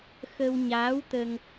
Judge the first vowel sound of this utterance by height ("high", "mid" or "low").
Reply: mid